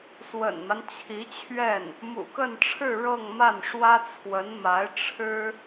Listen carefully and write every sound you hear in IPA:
s w ə̰˨˩ n m a˦ n t͡ɕʰ i˧˥ t͡ɕʰ ɥ ɛ˥˩ n | m ṵ˨˩ k ə˥˧ n ʈ͡ʂʰ ɻ̩˥˧ ɻ ɤ˥˧ ŋ m a˥˩ n ʂ w ä˥ t͡sʰ w ə˧˥ n m a˧˥ ɪ̯ ʈ͡ʂʰ ɻ̩˥

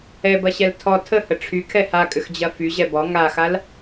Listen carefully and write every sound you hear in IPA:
ɛ b ɐ ɕ ɛ l tʰ ɔ tʰ ə h ə ʈ͡ʂʰ y kʰ ɛ h a kʼ ʏ x d͡ʑ ɐ f y ʑ ɛ b ɔ ŋ a x a l

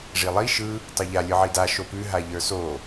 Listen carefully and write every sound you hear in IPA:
ʐ i lˠ i ʃ ɯ | tˤ ɯ ʎ a lʲ ɯ ʕ i d a ʃ o p ʉ ɦ a ʎ ə˞ s o

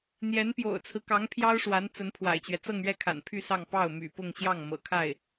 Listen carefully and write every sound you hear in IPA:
n̪ j ɛ˧˥ n p j o̰˨˩ ʊ̯ t͡sʰ ɹ̩˦ k ɑ˧˥ ŋ pʰ j ɑ˥ ʊ̯ ʂ w a˧˥ n t͡s ə˧˥ n pʰ w a̰˨˩ ɪ̯ t͡ɕ ɥ ɛ˦ t͡s ɤ˥˧ ŋ ɥ ɛ˥˩ kʰ a̰˨˩ n pʰ y˥˧ s ɑ˥˧ ŋ p ɑ˥˩ ʊ̯ m y̰˨˩ p ʊ˥˧ ŋ ɕ j ɑ˥˩ ŋ m ɤ̰˨˩ kʰ a˥˩ ɪ̯

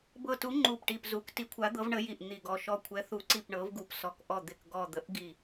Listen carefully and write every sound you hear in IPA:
b ɤ˨˩ t u˩˧ ŋ͡ǃ u˨˩ p ʈ i˨˩ p z u˩˧ k t i˩˧ kʷʰ a˩˧ d̪ ɤ˩˧ v ɳ ə˩˧ j i˨˩ ʔ n̪ i˨˩ ɡ ɔ˨˩ ʃ ɔ˨˩ kʷʰ ɛ˩˧ θ u˩˧ ǀ i˨˩ p ɳ ɤ˩˧ v ɡ u˨˩ p s ɔ˨˩ k ʔ ɔ˨˩ d̪ ɪ˨˩ k ɡ ɔ˨˩ d̪ ə˩˧ ʔ ɡ i˨˩

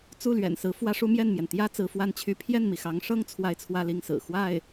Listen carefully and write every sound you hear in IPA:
t͡s u˥˩ l ɥ ɛ̰˨˩ n s ɹ̩˧˥ f w ä˥ ʂ u˥ m j ɛ˥˩ n m j ɛ˩ n t̪ j ä˥ t͡s ɹ̩˧˥ f w a˥˧ n t͡ɕʰ y˥˧ pʰ j ɛ˥˩ n m i˩ x ɑ˧˥ ŋ ʂ ɤ˥ ŋ t͡sʰ w a˥˧ ɪ̯ t͡sʰ w ä˥˧ l i˥˩ ŋ s ɹ̩˨˩ x w a˥˩ ɪ̯

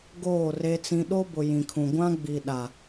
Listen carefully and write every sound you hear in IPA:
ɡ oː˦˨ r e˦ t͡s ĩ˦ ɗ o˦ b ʊ˨ j ĩ˨ kʰ ũ˨ ɡʷ ã˦ ɡ͡b i˨ ɗ a˨

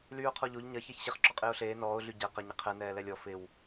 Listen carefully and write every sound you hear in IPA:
l yː ʊ̯ qʰ ɔ ʎ o ʎ ɲ ɐ ç ɛ ç ɕ ɪ χ ǁ ɔ qʼ ɪː ʊ̯ ɬ eː n ɔː ʊ̯ ɮ y ɟ ɛ q ɐ ɲ ɪ qʰ ɛ n ɛː l ɛ lʲ ɔ f ɪ w

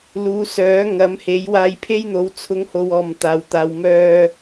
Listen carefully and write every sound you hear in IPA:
l uː˨˧ s œː˨˥ ŋ ɐ˨˥ m h e˨˥ j w aː˧ j pʰ e˥ j n̪ o˨˥ w t͡sʰ ʊ˨˥ ŋ h o˨ w ɔː˨˩ m t̪ aː˨˩ w t̪ aː˨ w m œː˧

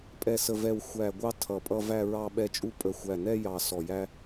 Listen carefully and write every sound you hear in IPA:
pʼ ɛ˨˩ s ə˨˩ v ɛ˨˩ w xʷ æ˨˩ ɡʷ ɑ˧ tʰ ʌ˨˩ pʼ ʌ˧ v æ˧ ɹ ɑ˧ ɓ ɛ˧ t͡ʃʼ u˧ pʼ ə˨˩ xʷ æ˨˩ n ɛ˧ j ɑ˨˩ s ɔ˨˩ j æ˧

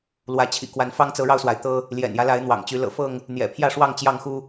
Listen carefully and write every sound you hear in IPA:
l w ä˨˦ t͡ɕʰ ḭ˨˩ k w a˨˦ n f ɑ˦ ŋ t͡s ɤ˨˦ ɻ ɑ˧ ʊ̯ s w a˩ ɪ̯ t̪ ɤ˦ | l j ɛ̰˨˩ n j ä˦ l a˨˦ ɪ̯ n̪ w ɑ̰˨˩ ŋ t͡ɕ y˨˦ l ɤ̰˨˩ f ɤ˥˨ ŋ | n̪ j ɛ̰˨˩ pʰ j ä˥˨ ʂ w ɑ˥˨ ŋ t͡ɕ j ɑ˥˨ ŋ x u˦

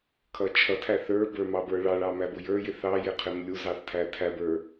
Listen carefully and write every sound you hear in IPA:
kʰ ʌ t͡ʃʰ ʌ tʰ æ θ ə˞ b ə˞ m ɑ b ə˞ ɭ ɑ ɭ ɑ m æ b ʊ j ə˞ j ɪ θ ɑ j ɪ qʰ ɪ m lʲ u z ɑ θ tʰ æ tʰ æ b ə˞

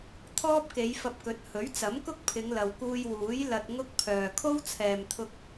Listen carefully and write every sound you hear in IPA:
t̪ʰ ɔː˥ p̚ k e˨˧ j f ɐ˧ p̚ k ɵ˨˥ t̚ h ɵ˨˥ ɥ t͡s ɐ˨˥ m k ʊ˥ k̚ pʰ ɪ˨˧ ŋ l ɐ˨ w k uː˧ j w uː˨˥ j l ɐ˧ t̚ ŋ ʊ˥ k̚ pʰ œː˨ kʰ o˥ w t͡sʰ ɛː˨ m t̪ʰ ʊ˧ k̚

